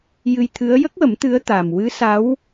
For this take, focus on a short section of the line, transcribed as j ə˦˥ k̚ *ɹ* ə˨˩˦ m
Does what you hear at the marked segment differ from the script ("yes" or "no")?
yes